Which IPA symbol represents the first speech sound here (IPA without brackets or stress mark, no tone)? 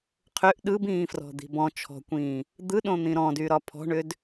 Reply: qʰ